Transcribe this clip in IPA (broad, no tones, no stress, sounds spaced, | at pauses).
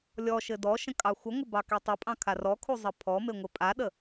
lʲ ɔ ʃ ɘ d ɔ ʃ ə̃ kʼ ɑ xʷ ə ŋʷ ə b ɑ k e tˤ ə pʼ ɑ̃ kʰ a r ɔ kʰ u zˤ ɘ pʰ ɔ m e ŋʷ ɘ pʼ a ɗ ə